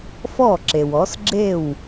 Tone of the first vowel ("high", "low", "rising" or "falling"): falling